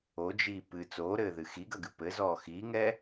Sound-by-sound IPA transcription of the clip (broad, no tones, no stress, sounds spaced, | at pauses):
o d͡ʒ iː p ɨ t͡s oː ɾ ɘː ð ɨ x i ɡ ɐ ɡ ɨ p ɘ z ɔː x iː ŋ ɛ